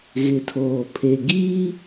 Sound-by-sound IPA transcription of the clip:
ɣ ɪ˨ tʰ oː˨ pʰ e˨ ɡ iː˦

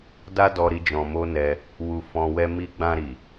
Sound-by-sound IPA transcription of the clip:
d a˦ d ɔ˧ ɾ i˧ d͡ʒ ɔ̃˧ m o˦ n ɛ˧ | w u˧ f ɔ̃˧ w ɛ˦ m i˦ ɡ͡b ã˧ ɾ i˨

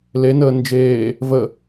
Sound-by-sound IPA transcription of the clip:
l e n əː n d͡ʒ eː | v ə

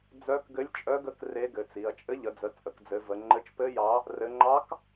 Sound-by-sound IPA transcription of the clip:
d͡z œ˧˥ k ɡ ɘ˧˥ lʲ t͡ʃʼ œ˧˥ ɡ ə˧˥ k r e˧˥ ɡ ɘ˩˧ t͡s i˩˧ ɐ̯ t͡ʃʼ ɘ˧˥ ʎ ə˩˧ d͡z ə˩˧ t͡sʼ ə˩˧ k d͡z ɘ˩˧ v ə˩˧ ŋ͡ǃ ɘ˧˥ t͡ʃ p ɘ˧˥ j ɑ˧˥ | r ɘ˩˧ ŋ͡ǃ ɑ˧˥ k

